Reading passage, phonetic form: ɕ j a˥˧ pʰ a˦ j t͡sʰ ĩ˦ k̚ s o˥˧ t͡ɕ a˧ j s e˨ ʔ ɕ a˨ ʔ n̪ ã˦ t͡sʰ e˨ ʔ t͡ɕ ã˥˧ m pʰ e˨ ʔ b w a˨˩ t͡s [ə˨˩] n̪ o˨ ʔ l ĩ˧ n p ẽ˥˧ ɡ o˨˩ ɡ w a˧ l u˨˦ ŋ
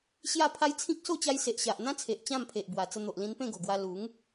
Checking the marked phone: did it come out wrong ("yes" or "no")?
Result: yes